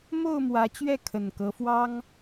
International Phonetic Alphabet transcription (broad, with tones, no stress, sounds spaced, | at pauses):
m o˥˨ ʊ̯ m w ä˨˦ t͡ɕ ɥ ɛ˥˨ kʰ ə˨˩ n k ɤ˨˦ f w ɑ˦ ŋ